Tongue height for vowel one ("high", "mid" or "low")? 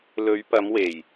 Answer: mid